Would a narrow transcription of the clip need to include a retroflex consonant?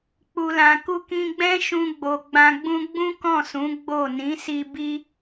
no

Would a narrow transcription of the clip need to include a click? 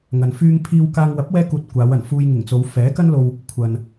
no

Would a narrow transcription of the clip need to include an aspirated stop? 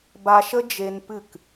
no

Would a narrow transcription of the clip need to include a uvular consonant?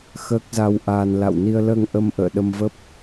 no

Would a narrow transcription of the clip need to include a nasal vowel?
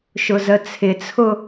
no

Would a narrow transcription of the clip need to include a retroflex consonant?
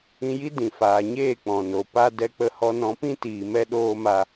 no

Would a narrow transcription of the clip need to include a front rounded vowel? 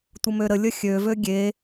yes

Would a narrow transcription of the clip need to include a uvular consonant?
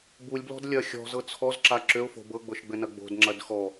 no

